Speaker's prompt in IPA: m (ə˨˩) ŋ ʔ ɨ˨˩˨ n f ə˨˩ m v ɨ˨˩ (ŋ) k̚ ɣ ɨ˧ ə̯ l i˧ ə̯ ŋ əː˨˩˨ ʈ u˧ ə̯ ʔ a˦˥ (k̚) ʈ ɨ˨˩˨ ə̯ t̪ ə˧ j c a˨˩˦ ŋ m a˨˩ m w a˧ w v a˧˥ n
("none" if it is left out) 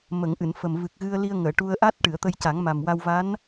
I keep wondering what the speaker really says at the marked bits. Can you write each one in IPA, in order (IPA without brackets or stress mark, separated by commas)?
ə˨˩˨, none, t̚